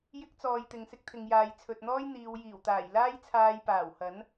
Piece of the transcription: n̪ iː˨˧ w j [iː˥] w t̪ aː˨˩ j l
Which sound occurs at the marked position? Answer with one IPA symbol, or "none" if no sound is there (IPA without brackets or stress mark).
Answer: iː˨˩